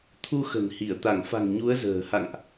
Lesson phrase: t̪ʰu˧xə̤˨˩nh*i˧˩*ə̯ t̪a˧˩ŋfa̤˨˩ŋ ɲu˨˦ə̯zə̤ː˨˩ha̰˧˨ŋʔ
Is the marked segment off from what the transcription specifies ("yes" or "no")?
no